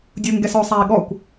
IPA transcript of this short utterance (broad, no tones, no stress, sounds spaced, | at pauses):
dʲ u ŋ ɡ ɛ s ɔ sˤ a i̯ ɠ ɔ kʷ